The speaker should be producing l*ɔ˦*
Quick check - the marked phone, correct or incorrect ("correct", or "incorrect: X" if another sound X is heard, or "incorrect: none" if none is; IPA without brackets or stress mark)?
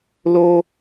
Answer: incorrect: o˦